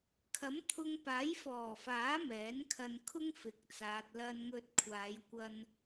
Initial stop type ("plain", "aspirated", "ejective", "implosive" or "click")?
aspirated